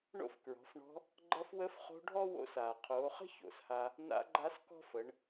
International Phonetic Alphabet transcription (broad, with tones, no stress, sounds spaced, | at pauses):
ɳ o̰˥ f k ɹ ɔ̤˩˧ f ɳ ɔ̤˧˥ | ɡ͡ǃ ʌ˧˥ f w ə˧˥ f χ o̤˧˥ ɖʱ ɔ˥ w o̰˧˥ s aː˩ qʰ oː˩˧ χ ə̤˥ ç o̰˩˧ s h a˧ | n a̰˧˥ ɡ͡ǃ a˧˥ s k ɔ̤˥ f ə˩˧ ɳ